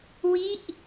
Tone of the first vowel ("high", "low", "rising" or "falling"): falling